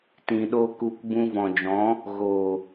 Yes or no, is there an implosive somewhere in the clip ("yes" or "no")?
yes